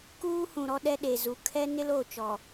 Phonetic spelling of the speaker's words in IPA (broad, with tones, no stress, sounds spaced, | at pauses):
k uː˦ h ũ˨ ɾ ɔ˦ ɗ ɛ˦ ɗ e˨ z u˨ kʰ ɛ˦ n ɪ˦ l o˦˨ t͡ʃ ɔ˨